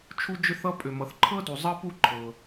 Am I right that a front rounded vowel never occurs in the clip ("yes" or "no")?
no